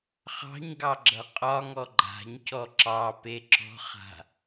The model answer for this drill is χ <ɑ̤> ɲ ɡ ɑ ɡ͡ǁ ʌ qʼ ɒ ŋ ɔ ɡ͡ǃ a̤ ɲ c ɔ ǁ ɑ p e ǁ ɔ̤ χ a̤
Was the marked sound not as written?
no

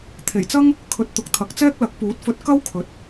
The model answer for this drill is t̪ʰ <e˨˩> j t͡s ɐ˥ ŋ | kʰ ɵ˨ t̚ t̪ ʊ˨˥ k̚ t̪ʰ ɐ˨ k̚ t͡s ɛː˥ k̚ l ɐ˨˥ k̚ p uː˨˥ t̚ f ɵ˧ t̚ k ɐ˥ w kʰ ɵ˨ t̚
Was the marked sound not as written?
no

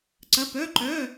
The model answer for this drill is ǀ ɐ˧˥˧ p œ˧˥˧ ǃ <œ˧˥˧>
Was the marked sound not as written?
no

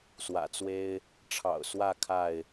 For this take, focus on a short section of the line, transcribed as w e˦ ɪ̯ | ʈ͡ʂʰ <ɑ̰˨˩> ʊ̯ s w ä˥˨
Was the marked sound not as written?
no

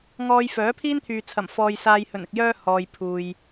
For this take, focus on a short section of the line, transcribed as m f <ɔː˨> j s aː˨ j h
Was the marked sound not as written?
no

